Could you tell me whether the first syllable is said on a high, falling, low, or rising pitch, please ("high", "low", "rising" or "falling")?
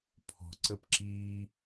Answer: low